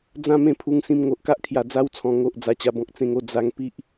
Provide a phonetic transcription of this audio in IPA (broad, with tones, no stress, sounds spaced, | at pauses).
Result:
d͡z ã˥˧ m ẽ˦ pʰ u˧ ŋ s ĩ˧ m ŋ o˨ ʔ k a˦ ʔ kʰ j a˨˩ d͡z a˧ w t͡sʰ ɔ̃˨˩ ŋ o˨ ʔ d͡z a˨˩ t͡ɕ a˨˩ b ɔ̃˨ k̚ t͡s ẽ˧ ŋ o˦ d͡z a˧ ŋ p i˦ ʔ